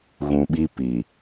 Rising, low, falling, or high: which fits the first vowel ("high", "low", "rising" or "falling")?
low